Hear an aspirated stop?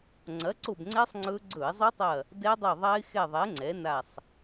no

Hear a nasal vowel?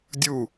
no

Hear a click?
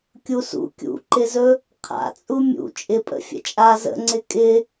yes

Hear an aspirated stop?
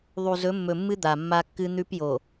no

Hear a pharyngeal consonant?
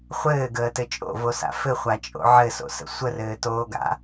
yes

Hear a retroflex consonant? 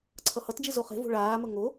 yes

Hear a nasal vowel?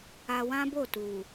yes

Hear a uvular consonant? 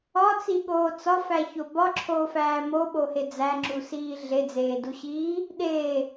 no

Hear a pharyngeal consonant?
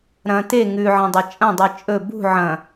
yes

